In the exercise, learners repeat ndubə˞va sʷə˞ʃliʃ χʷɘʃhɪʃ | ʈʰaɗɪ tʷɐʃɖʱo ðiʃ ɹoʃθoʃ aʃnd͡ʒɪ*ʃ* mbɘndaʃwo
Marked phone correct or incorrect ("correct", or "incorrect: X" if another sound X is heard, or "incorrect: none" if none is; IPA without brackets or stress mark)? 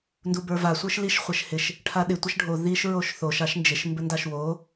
correct